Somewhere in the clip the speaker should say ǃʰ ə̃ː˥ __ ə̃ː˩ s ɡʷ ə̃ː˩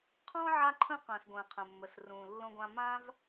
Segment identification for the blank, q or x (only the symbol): q